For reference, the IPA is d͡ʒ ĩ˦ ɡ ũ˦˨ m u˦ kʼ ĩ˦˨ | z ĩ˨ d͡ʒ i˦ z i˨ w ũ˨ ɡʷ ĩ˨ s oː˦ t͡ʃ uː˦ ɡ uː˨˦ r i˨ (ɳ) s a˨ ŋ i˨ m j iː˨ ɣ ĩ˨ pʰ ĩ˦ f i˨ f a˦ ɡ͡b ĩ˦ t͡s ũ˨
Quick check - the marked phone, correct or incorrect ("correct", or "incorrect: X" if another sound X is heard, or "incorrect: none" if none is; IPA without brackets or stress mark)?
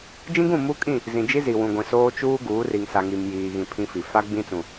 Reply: incorrect: ŋ